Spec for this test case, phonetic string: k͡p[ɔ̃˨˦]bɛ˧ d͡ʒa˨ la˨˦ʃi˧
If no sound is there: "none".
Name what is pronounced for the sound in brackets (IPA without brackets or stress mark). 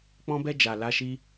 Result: ɔ̃˧